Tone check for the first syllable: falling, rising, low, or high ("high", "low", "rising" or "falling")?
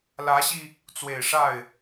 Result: rising